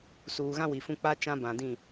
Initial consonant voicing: voiceless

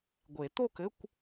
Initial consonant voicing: voiced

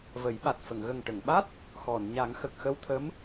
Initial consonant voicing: voiced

